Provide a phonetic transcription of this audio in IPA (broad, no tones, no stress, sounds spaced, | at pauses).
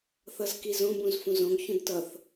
θ ʌ z k i z õ b ũ z f ũ z õ ɡ ç ũ d t ʌ θ